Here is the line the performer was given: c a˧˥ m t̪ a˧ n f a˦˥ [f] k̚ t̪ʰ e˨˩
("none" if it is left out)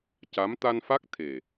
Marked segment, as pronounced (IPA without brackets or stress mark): none